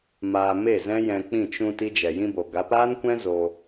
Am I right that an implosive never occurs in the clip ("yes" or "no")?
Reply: yes